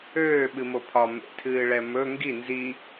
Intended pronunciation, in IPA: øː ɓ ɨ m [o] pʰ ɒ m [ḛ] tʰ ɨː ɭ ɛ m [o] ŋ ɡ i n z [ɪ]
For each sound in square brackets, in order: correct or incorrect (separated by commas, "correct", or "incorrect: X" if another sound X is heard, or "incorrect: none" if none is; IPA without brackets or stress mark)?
correct, correct, incorrect: ɵ, incorrect: i